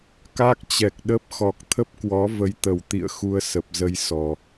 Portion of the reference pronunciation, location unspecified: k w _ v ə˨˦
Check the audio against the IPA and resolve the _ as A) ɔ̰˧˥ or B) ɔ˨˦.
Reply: B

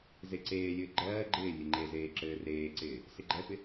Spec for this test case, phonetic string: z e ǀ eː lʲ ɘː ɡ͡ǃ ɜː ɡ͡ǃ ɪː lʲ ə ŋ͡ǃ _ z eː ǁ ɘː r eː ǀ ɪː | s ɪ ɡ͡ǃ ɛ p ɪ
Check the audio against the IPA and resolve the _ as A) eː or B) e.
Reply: B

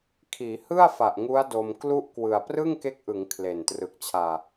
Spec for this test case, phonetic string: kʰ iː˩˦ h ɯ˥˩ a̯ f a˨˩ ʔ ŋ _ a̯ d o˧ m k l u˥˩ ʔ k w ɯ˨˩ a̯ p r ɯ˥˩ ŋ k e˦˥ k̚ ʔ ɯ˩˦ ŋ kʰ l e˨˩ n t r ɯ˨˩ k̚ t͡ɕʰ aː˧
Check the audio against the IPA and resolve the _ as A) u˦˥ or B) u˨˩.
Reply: A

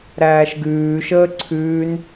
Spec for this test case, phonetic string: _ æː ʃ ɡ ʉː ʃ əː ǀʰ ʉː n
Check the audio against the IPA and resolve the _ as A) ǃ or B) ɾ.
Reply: B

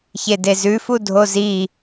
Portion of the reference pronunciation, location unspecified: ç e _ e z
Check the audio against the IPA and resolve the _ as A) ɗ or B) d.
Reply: B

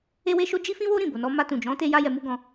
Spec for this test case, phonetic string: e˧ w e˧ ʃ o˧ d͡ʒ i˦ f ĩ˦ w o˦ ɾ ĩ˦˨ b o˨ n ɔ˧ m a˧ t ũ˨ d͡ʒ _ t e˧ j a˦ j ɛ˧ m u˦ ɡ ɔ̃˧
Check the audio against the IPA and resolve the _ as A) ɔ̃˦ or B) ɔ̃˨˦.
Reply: B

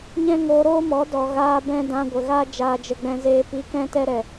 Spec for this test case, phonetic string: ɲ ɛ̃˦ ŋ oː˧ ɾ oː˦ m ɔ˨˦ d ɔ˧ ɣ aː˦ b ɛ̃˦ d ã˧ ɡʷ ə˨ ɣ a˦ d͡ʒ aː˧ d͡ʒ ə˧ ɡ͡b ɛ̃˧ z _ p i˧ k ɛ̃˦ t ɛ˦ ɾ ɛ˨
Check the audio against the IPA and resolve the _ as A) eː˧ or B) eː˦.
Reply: A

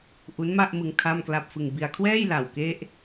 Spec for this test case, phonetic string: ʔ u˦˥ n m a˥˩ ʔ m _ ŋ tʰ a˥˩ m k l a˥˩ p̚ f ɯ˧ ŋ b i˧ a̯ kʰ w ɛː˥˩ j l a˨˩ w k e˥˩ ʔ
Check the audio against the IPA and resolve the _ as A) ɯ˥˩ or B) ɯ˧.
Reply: B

